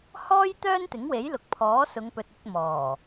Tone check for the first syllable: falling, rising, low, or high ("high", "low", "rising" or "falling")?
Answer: high